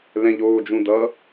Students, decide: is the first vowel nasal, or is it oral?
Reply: nasal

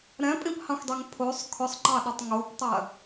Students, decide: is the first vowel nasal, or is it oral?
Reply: nasal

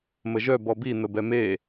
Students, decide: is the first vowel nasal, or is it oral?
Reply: oral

